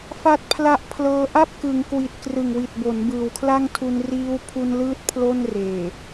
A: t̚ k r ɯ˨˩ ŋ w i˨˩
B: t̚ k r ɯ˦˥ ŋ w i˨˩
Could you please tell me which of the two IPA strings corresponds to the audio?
A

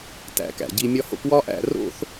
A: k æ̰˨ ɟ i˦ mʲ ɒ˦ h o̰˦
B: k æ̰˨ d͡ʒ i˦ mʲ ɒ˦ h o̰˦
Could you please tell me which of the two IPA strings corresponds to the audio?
A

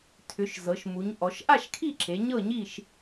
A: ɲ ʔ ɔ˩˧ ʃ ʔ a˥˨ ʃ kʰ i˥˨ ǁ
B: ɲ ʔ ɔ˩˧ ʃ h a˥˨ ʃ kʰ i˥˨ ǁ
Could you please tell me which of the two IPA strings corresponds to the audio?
A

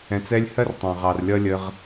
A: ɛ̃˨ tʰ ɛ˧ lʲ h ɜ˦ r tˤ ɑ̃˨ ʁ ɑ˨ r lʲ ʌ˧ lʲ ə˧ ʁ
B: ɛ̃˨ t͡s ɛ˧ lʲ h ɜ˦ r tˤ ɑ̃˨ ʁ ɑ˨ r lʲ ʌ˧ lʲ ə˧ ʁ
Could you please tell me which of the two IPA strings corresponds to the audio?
B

